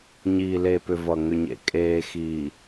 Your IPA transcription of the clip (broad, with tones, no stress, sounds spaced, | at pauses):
ɲ iː˨ l e˨ p ʏ˨ v ʌ˨ ŋ ʏ˨ ɲ ḛ˨ kʼ eː˨ x iː˨